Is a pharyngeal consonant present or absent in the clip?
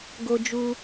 absent